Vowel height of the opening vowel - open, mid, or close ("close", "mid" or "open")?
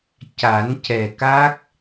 open